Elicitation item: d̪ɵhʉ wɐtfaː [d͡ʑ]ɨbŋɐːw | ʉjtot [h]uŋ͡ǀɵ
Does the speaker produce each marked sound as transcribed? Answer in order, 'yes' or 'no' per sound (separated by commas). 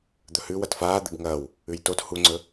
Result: no, yes